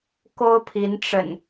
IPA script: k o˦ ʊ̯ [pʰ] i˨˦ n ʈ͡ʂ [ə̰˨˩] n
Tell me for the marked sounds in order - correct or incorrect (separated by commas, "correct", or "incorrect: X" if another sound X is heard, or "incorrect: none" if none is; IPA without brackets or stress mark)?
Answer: correct, correct